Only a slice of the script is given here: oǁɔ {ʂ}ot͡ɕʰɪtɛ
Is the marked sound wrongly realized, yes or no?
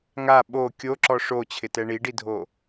no